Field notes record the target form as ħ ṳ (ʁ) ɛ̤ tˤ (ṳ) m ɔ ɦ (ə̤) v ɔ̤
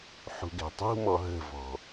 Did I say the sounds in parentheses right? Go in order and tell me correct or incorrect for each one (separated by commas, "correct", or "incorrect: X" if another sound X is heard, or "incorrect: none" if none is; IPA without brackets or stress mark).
incorrect: ɡ, correct, correct